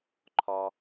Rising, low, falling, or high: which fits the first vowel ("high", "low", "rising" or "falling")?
low